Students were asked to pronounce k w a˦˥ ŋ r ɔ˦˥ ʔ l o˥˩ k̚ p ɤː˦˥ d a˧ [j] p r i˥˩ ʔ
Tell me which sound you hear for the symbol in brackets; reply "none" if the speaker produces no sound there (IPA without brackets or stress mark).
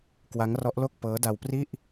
w